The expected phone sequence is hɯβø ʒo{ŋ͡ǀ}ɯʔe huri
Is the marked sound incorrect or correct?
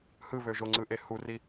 correct